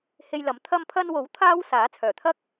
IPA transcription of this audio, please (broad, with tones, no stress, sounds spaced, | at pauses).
h e˧ j l ɐ˨˥ m t̪ʰ ɐ˧ m pʰ ɐ˧ n w o˨˥ w t̪ʰ aː˥ w s aː˨˥ t͡sʰ œː˨˩ t̪ʰ ɐ˥ k̚